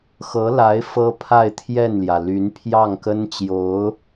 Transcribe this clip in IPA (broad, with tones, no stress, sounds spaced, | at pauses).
x ɤ˧˥ l a˧˥ ɪ̯ f ɤ˥ pʰ a˥˧ ɪ̯ t̪ʰ j ɛ˥˩ n l j ä˩ l y˧˥ n pʰ j ɑ˥˩ ŋ k ə˥ n t͡ɕ j o˧˥ ʊ̯